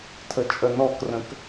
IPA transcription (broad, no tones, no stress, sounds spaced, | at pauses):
tʰ ə t͡ʃʼ ə n ɔ k r ə̃ k